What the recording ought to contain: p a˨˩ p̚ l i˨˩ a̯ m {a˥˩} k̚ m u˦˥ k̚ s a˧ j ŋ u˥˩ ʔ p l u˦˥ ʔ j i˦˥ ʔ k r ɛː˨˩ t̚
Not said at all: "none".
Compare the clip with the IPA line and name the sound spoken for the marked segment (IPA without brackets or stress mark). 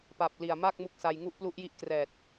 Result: a˥˩